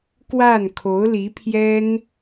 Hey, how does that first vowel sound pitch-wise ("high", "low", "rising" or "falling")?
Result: falling